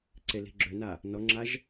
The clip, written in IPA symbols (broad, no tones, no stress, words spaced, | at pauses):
ǀeli̤ɡ͡ǁøna | nɔŋ͡ǁaʒ